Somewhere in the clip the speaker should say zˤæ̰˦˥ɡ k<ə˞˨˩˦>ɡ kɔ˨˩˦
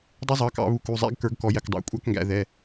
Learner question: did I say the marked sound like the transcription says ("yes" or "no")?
yes